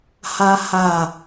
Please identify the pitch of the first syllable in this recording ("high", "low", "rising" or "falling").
high